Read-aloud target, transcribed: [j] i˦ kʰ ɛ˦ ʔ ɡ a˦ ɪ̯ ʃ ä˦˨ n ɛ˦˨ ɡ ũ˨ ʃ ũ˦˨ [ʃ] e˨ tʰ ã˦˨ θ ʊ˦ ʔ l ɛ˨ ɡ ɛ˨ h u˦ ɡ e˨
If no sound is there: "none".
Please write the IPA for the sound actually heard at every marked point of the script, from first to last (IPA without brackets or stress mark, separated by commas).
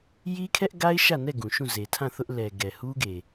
j, z